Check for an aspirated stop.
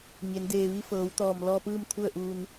present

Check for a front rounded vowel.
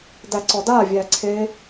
absent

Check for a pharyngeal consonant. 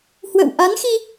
absent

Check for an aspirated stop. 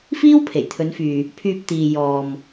present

